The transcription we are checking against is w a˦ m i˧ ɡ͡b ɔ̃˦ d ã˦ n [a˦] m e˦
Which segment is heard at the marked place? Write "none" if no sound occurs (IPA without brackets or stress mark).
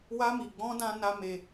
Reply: a˦